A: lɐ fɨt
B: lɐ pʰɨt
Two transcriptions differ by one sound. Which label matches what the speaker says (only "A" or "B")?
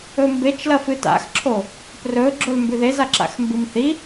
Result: A